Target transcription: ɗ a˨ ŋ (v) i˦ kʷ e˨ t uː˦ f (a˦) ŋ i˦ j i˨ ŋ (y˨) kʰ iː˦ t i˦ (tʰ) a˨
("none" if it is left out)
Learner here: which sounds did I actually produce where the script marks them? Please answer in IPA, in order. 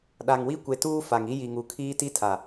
w, a˨, u˨, tʰ

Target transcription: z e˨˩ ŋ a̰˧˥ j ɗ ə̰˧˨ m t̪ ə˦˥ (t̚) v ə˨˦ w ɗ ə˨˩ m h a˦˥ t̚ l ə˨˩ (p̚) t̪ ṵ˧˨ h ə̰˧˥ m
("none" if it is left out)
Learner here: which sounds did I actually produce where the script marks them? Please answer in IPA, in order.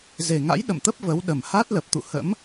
p̚, p̚

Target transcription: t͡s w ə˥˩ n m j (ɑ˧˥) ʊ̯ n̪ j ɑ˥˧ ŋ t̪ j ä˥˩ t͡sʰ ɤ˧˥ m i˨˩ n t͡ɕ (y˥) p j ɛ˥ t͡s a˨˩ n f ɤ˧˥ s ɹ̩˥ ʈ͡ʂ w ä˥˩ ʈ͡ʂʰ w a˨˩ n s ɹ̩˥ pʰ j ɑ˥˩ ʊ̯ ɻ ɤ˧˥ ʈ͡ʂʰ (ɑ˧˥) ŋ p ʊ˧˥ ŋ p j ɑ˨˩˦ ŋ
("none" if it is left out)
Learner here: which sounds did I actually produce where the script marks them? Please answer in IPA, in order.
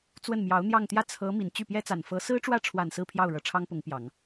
ɑ˧˥, y˥˩, ɑ˥

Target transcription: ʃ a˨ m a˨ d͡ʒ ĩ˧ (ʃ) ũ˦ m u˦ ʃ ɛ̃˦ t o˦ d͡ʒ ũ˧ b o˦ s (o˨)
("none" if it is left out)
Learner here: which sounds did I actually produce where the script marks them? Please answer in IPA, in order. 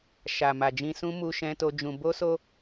s, o˦

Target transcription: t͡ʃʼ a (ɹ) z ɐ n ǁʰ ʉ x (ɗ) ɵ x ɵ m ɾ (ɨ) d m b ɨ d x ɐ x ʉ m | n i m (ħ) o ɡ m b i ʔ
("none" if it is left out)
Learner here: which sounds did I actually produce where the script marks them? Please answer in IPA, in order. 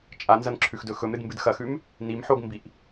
n, d, ɨ, ħ

